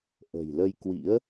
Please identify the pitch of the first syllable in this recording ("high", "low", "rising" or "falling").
low